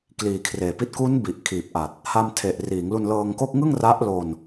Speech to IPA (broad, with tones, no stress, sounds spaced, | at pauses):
k l iː˨˩ kʰ r eː˨˩ p i˦˥ t̚ k u˦˥ n b i˨˩ ʔ kʰ iː˨˩ p̚ ʔ a˨˩ t̚ | h a˧ m tʰ e˨˩ ʔ r iː˩˦ ŋ l u˧ n l ɤː˧ ŋ k o˥˩ k̚ ŋ ɯ˥˩ ŋ r a˦˥ ʔ l o˧ n